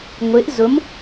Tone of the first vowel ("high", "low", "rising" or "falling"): rising